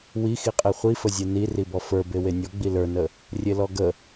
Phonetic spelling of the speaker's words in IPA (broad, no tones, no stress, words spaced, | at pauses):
wixiqʼe χʷifəzʲe niribɔ fə˞be wenʲɔ ɡ͡bilə˞nə | rʲelɔɡə